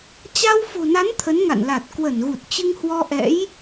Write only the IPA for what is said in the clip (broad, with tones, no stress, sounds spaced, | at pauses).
t͡ɕ a˧ w f o̤˨˩ n a˨˦ n t̪ʰ ə˨˦ n ŋ a̰˧˨ n l a˨˩ t̚ k w ə˧˩ n ɣ u˨˩ t̚ t͡ɕ ɨ˧ ŋ h w ɔ˧ ʔ ɛ̰˧˥ j